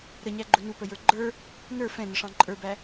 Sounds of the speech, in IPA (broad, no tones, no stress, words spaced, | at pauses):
ɾəɲæɡ͡ǃʊ nupəjə˞ ɡ͡ǃə˞ | nə˞ fɛ̃nəʂɑ̃ ǃʼə˞bæ